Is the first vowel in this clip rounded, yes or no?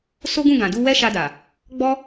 yes